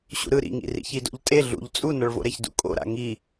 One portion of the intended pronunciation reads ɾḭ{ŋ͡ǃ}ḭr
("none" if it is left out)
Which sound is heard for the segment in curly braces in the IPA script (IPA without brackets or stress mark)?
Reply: ŋ